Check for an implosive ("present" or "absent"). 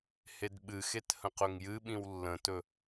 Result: present